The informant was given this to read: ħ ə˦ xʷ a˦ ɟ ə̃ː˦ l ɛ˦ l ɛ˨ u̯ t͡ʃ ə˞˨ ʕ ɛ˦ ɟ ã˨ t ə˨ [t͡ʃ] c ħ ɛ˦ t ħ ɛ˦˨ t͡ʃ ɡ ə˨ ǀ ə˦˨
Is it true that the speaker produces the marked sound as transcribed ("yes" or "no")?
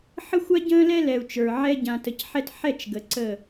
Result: no